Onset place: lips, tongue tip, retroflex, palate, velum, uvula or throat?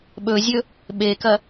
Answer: lips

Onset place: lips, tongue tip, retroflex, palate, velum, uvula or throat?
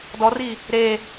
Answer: tongue tip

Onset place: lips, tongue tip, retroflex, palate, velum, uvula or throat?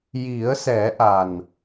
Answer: palate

